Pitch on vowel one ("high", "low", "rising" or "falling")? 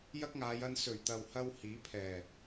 high